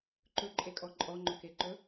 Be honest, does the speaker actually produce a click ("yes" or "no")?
yes